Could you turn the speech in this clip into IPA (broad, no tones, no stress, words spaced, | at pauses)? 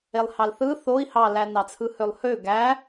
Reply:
elˠhɑlθɯ θoi̯ hɑlænɑt͡sʰɯ hølˠhø ɡæ